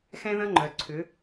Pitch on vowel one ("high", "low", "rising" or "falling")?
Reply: high